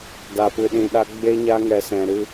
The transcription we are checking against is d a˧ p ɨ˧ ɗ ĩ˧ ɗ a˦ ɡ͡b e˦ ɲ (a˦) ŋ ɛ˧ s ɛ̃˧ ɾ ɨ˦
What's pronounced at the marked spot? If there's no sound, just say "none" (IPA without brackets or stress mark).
a˦